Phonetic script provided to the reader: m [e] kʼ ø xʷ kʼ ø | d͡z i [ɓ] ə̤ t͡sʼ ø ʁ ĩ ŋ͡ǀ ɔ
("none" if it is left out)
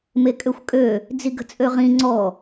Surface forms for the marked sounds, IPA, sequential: e, ɡ

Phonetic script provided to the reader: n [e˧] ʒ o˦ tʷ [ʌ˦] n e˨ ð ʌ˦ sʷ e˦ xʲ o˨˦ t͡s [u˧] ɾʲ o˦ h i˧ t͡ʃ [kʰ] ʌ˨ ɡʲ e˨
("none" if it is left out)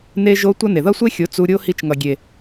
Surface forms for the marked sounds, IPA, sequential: e˦, ʌ˦, u˧, ŋ

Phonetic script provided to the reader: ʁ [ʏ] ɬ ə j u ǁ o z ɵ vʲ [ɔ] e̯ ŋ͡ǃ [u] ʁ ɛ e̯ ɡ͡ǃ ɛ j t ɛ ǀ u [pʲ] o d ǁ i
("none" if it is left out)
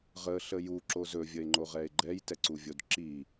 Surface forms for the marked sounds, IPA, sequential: ə, ə, o, vʲ

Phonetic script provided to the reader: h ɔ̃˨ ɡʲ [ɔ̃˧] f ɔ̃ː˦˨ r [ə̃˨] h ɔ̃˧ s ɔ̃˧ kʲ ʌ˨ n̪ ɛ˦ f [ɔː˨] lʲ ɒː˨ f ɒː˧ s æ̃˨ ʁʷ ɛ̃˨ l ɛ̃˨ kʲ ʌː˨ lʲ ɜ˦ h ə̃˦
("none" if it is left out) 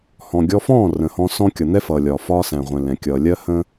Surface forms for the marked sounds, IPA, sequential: ɔ˧, ə̃˨, ʌː˨

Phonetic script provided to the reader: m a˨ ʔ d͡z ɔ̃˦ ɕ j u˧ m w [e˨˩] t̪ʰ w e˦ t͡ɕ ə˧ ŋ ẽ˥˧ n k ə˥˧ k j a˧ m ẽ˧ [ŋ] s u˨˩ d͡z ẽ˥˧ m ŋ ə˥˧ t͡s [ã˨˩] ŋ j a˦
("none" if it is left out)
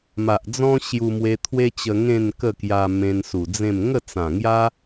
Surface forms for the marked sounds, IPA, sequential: e˧, n, ã˨˩

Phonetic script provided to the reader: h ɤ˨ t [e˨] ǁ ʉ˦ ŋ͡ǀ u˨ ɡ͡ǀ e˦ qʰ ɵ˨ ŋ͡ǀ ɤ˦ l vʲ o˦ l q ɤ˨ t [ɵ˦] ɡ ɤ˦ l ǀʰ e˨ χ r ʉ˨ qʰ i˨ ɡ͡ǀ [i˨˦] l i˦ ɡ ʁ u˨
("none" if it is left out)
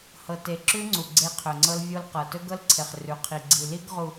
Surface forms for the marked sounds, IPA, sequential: e˨, ɵ˦, i˨

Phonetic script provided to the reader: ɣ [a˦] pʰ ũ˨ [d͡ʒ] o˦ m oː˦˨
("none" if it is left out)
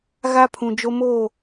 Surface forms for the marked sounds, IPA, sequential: a˦, d͡ʒ

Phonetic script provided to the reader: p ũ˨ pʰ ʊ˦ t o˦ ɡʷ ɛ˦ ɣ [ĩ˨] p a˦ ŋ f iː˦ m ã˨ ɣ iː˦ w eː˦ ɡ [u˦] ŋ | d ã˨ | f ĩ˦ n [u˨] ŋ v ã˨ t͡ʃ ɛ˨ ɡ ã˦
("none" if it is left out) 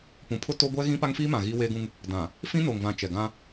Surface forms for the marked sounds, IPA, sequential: ĩ˦, ũ˦, o˨

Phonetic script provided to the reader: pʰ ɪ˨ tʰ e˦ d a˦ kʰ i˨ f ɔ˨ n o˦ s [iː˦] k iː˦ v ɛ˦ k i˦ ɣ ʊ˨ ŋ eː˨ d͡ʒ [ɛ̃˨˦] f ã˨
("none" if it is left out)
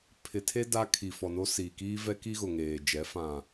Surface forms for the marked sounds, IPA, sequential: iː˨, ɛ˨˦

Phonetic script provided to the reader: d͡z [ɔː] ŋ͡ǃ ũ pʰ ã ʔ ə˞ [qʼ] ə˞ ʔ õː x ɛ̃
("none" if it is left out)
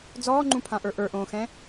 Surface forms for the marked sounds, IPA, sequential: ɔː, ʔ

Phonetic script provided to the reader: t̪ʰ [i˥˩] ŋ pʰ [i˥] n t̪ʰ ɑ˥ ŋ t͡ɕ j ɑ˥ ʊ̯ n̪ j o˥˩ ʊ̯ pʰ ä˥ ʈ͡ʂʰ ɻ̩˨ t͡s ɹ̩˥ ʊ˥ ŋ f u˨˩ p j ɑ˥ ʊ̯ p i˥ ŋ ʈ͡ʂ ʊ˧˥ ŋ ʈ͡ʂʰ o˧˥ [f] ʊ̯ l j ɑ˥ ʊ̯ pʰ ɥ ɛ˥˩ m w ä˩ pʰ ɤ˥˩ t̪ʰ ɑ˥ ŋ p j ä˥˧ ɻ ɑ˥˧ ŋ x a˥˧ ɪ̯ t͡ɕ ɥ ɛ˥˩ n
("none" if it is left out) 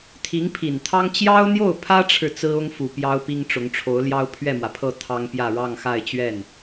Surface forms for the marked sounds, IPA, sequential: i˧˥, i˨˩, none

